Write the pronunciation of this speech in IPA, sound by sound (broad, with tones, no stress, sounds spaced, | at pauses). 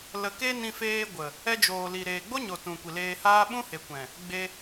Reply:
l ə˨ k e˧ n ĩ˧ f eː˧ ɡʷ ə˨ | ɛ˧ d͡ʒ oː˨ l i˨ ɾ eː˨ ɡ͡b o˦ ɲ o˨ t ũ˨ kʷ i˨ l eː˧ h aː˦ ɓ ũ˦ h e˨ kʷ ɛ̃˨ | ɡ͡b e˧